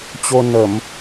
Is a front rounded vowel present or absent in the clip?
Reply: absent